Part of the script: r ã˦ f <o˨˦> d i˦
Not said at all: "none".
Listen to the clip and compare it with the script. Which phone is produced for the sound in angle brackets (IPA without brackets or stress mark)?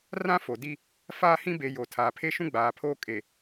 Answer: o˨